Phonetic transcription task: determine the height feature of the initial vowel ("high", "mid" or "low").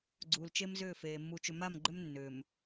high